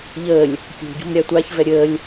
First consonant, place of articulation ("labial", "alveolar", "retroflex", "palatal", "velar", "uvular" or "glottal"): palatal